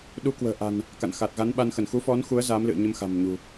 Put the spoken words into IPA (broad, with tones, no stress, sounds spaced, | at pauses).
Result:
ɗ u˨˦ k w ə̤ː˨˩ ʔ a̤˨˩ n | k a̰˧˨ n x aː˨˩ t̚ ɣ a˨˦ n ɓ a˧ n x ə˧˩ n x u˨˦ f ɔ˨˦ n x u˨˦ ə̯ z aː˨˦ m l ɨ̰˧˨ ə̯ ɲ ə˧ m x a̤˨˩ m ɲ ṳ˨˩